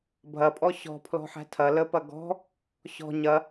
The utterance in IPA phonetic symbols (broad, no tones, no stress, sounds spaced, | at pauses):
bʱ ɐ pʼ ɔ ɕ ɔ̤ pʰ l ɔ̤ ħ æ̤ tʰ ɐ l ə p ɐ ɡ ɔ̤ | ɕ ɔ̤ ɲ ɐ